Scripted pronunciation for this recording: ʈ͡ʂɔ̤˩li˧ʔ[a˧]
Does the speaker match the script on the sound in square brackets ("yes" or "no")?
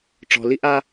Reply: yes